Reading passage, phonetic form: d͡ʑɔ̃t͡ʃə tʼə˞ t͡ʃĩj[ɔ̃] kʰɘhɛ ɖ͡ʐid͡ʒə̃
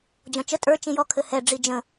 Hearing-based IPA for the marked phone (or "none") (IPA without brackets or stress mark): ɔ